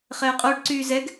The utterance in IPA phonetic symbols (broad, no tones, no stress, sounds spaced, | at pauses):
χ ɛː qʼ o ɖ ǀ yː z ɛ ɡ